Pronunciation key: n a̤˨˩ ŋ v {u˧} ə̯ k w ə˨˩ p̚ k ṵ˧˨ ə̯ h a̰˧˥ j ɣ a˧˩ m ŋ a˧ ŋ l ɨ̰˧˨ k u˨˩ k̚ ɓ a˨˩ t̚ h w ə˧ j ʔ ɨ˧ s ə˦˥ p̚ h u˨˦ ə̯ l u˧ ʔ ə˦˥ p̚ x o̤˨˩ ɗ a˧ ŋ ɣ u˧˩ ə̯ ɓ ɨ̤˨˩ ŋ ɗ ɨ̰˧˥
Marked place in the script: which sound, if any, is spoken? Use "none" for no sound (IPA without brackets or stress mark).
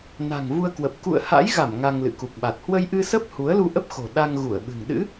u˧